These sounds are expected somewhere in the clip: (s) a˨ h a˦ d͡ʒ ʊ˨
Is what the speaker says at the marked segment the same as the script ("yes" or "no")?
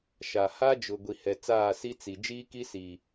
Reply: no